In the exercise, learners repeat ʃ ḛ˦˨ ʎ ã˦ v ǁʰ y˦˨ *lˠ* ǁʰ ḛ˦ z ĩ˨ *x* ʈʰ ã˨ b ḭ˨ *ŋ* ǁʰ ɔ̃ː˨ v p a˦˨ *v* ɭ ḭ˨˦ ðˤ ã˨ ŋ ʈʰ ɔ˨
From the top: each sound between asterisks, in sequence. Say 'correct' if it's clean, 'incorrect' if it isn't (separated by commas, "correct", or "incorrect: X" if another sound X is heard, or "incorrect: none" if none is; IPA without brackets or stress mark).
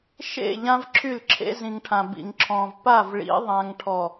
incorrect: l, incorrect: ŋ, correct, correct